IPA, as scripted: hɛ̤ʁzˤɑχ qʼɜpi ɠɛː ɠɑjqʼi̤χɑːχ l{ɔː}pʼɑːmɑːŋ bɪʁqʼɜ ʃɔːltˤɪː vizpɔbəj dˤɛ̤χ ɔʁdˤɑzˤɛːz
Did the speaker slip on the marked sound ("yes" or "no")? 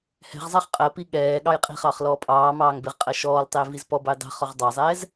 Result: no